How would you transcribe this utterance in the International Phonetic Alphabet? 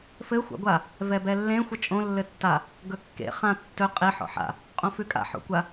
f ɘ xʷ a̰ ɡʷ a | v ɛ b ɛ lː ẽ xʷ ɘ t͡ʃʼ õ lː ɘ tː a | ɡ ɵ kː ḛ χ ã tː ɵ qʼ e ħ ɔ̰ ħ a̰ | qʼ õ f ʉ kʼ a̰ ħ o̰ kʷ a

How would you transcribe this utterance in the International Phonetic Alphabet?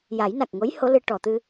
j a˨˩˦ j n a˨˩ k̚ ŋ o˧˥ j h o˧˥ l ɨ˧ ʈ ɔ˨˩˨ t̪ ɨ˧

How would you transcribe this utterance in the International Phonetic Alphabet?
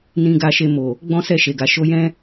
n ĩ˧ ɡ a˧ ʃ e˧ m o˨ | ɡ͡b ɔ̃˦ s ɛ˦˨ ʃ e˨ ɡ a˨ ʃ o˨˦ j ɛ̃˦

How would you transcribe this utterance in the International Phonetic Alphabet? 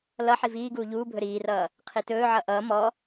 l ʌ ħ i v iː ɡ uː ʎ uː bʱ ɵ ɾ iː r ʌː | qʰ i t ɵː ʕ ʌ ʔ ʌː m ɔ

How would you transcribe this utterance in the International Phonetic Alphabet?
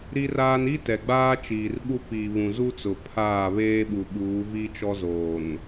ɾ i˦ r aː˦ n i˦ t ɛ˨ ɡ͡b aː˦ t͡ʃ iː˨ r ɓ u˦ p i˨ β ũ˨ z u˦ t͡s ʊ˨ pʰ aː˦˨ β eː˦ ɓ u˨ ɓ uː˨˦ v i˦ t͡ʃ ɔ˦ z oː˨ n

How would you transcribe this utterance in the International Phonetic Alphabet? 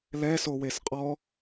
l ɛ s o w e s qʼ ɔ

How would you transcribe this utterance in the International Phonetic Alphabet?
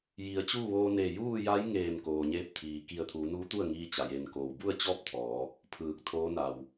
j i˩˧ ə̯ t͡ɕ uː˥˨ ʋ oː˧ n e˧˩ j uː˥˨ j a˧˥ j ŋ eː˧˩ m k oː˩ ɲ eː˧ p̚ t̪ʰ iː˩ k i˧˩ ə̯ t̪ʰ uː˩˧ n uː˧˥ t̪ u˥˨ ə̯ ŋ iː˧ t͡ɕ a˩ j e˩ n k oː˩ w b u˥˨ ə̯ t͡ɕ ɔː˥˨ p̚ t̪ʰ ɔː˩˧ | pʰ ɯː˧˩ k̚ t̪ʰ oː˧˥ n a˩ w

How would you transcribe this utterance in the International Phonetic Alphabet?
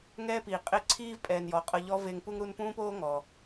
ŋ ɛː˥ p iː˩ qʼ e˦ ǀʰ iː˥ v pʼ ɛː˨ n j ɔ˩ qʼ ɤ˨ ʎ ɔ˥ v e˦ ŋ p u˦ ŋ ɾ u˦ n p ũː˥ p oː˥ ŋ ɔ˩

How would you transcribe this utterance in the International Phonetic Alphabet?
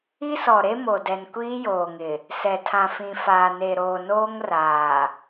i˦ s ɔ˨ ɾ e˦ m o˨ d ɛ˨ n kʷ iː˦ j oː˨ ŋ ɪ˨ | s ɛ˨ tʰ ã˨ f ĩ˨ f aː˨ n e˨ ɾ oː˨ n oː˦ ŋ r aː˨

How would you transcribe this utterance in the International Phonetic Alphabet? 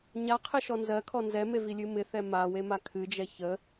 ɲ a qʰ ɪ ʃ ɔ n z ɜ kʰ ɔ n z ɛ m e v i lʲ ɨ m ɪ θ ɛ m a w e m a kʰ ɨ d͡ʒ ɛ ç ə

